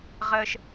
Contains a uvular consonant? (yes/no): yes